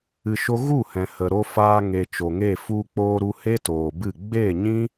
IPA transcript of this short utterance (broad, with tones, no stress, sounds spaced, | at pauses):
ɨ˧ ʃ o˦ ɣ u˦˨ h ɛ̃˨ h ə˨ ɾ o˧ f aː˧ ŋ e˨ t͡ʃ o˨ ŋ e˦˨ f u˧ k͡p oː˧ ɾ u˧ h e˦ t oː˨ b ɨ˦˨ ɡ͡b e˦˨ ɲ ĩ˦